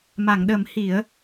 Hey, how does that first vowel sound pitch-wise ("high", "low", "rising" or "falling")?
low